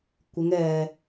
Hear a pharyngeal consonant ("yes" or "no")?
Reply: no